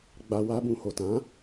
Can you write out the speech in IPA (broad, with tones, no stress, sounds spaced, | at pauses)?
ɡ͡b a˧ w a˦ b ũ˧ h o˨ t ã˨˦